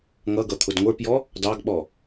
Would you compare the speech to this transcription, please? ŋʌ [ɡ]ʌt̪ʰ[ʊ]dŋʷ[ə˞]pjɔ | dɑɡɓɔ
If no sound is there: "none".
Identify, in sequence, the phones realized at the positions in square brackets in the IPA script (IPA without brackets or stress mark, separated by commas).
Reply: ɡ, ʊ, ə˞